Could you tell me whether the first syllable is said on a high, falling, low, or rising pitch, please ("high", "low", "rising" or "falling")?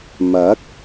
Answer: rising